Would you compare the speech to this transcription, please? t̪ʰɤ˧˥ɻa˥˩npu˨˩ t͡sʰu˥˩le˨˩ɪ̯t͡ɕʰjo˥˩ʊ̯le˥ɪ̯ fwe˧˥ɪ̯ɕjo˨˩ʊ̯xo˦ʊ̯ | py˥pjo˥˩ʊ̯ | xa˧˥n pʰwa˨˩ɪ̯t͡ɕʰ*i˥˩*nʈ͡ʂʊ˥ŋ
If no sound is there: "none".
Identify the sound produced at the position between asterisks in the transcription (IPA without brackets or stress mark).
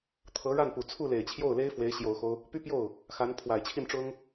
i˥˩